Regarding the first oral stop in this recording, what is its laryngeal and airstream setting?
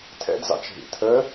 aspirated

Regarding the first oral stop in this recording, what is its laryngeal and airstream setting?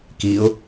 plain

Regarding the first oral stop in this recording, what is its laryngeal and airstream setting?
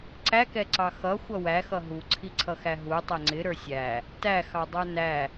click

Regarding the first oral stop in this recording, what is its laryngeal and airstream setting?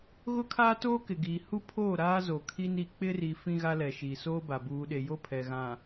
aspirated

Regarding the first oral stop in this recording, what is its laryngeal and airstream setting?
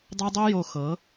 plain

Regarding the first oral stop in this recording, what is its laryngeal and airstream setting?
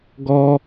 plain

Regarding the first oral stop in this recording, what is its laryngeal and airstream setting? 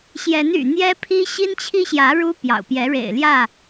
aspirated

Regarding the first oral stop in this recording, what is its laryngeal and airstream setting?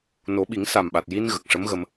implosive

